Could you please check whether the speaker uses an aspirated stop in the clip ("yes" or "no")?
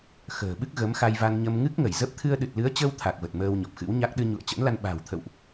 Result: yes